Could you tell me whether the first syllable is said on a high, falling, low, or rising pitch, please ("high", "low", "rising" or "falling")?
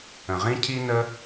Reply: low